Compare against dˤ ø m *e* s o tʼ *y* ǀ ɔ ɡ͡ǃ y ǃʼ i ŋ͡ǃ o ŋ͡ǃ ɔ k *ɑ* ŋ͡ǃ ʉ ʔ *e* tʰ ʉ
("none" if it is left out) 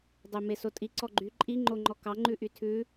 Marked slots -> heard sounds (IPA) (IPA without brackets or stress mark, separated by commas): e, i, ɑ, y